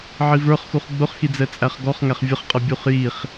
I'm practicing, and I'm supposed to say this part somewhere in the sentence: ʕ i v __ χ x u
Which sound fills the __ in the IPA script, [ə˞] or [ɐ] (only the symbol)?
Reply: ə˞